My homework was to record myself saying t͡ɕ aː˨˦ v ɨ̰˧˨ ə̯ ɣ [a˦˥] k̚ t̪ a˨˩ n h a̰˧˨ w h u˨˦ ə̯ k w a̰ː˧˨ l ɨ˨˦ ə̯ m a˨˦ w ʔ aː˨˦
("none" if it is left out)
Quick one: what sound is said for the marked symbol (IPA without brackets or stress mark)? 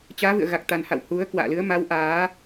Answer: a˨˩